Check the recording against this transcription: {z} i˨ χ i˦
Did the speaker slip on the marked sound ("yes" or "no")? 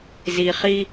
no